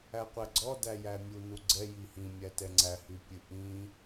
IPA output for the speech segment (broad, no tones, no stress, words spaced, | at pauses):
æqʷæɡ͡ǀɔdæ jæmʲu nuɡ͡ǀɛji hĩmʲætɛ ŋ͡ǀæhy pʲɨʔĩ